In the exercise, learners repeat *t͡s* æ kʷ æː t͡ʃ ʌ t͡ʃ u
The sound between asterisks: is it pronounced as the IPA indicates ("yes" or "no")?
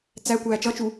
yes